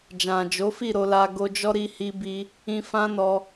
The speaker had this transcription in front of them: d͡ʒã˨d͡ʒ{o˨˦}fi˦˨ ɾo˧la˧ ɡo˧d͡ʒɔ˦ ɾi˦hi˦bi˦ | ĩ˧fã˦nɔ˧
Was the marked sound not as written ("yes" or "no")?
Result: no